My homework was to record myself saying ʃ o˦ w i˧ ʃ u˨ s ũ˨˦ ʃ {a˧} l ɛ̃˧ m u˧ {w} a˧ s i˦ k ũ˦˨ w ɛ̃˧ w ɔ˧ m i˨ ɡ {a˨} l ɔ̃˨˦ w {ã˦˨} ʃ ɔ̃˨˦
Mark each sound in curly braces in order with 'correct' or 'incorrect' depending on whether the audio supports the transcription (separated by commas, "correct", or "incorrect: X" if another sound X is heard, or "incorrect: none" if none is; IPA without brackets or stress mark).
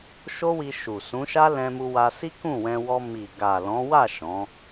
incorrect: a˦, correct, correct, incorrect: a˦˨